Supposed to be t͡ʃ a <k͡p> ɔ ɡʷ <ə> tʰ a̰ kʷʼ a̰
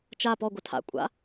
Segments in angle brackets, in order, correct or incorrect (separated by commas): incorrect, correct